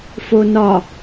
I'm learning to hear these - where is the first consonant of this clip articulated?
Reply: lips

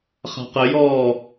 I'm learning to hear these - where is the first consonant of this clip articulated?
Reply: uvula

